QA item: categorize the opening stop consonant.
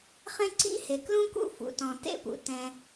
click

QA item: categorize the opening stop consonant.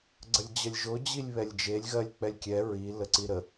click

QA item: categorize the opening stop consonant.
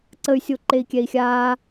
click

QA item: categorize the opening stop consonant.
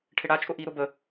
aspirated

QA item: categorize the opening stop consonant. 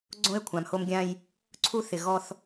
click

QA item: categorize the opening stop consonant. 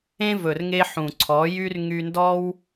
click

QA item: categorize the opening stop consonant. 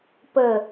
plain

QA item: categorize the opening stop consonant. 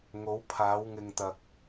aspirated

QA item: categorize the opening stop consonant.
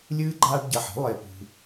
click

